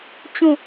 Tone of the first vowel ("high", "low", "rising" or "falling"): falling